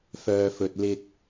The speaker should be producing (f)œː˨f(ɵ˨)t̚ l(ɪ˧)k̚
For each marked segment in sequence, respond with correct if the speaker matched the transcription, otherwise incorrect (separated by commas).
correct, correct, correct